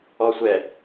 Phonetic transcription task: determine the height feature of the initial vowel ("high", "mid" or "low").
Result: mid